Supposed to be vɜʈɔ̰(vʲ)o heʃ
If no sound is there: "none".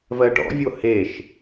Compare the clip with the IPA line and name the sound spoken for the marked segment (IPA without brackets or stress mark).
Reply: vʲ